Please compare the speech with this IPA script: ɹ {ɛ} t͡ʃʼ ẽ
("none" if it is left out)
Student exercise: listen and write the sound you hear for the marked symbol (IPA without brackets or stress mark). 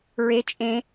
e